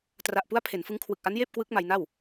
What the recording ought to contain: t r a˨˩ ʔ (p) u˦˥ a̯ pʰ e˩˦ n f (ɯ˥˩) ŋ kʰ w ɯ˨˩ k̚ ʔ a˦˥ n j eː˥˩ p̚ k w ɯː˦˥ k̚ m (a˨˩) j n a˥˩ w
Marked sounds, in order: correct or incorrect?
correct, incorrect: ɯ˦˥, incorrect: a˧

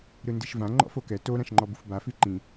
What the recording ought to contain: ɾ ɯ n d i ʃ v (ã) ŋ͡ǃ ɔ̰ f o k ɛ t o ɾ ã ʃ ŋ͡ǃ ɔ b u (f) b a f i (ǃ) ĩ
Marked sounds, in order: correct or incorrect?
correct, correct, correct

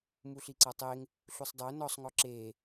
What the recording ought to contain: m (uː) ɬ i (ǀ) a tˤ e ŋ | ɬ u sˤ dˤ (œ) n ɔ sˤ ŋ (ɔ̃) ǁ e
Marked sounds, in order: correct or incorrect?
incorrect: u, correct, correct, incorrect: ɔ

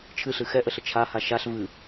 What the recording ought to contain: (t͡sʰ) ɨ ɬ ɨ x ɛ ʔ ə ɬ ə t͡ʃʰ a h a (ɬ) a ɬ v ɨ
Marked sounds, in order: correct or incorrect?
incorrect: t͡ʃʰ, incorrect: ʃ

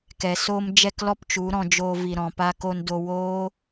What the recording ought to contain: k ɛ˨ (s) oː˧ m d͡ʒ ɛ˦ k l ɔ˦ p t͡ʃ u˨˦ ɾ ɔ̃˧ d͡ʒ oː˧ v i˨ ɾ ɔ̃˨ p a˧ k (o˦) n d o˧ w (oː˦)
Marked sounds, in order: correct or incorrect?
correct, incorrect: o˧, correct

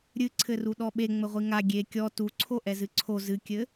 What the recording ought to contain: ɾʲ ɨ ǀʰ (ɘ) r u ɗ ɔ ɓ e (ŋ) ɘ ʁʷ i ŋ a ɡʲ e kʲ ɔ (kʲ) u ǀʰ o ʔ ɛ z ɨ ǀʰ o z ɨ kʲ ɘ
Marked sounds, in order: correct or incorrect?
correct, incorrect: ŋ͡m, incorrect: t

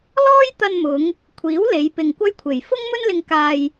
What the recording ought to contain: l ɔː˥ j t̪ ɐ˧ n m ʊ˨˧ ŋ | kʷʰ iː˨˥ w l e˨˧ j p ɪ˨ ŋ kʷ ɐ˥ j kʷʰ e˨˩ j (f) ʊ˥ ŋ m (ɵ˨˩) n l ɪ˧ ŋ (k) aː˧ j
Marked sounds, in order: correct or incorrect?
correct, incorrect: ɵ˥, correct

